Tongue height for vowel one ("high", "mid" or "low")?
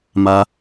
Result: low